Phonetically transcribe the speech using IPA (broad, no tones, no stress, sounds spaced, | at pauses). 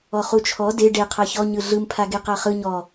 ɔ χ u t͡ʃʰ ɔ d e ɖ e qʰ a ç ɔ ɲ ɯ ɮ ɯ m pʰ a ɡ e q a χ ɯ ɲ ɔ